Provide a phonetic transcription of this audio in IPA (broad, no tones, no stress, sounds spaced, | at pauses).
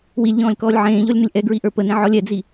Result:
w i lʲ ʎ ɔ̃ː lʲ k ɔː lʲ ʕ ẽː ʎ ɔ lʲ n ə lʲ ʔ ɛ ɡ ɹ i ʔ ə˞ p ə n ẽ ʕ ɔ lʲ ɛ d͡z i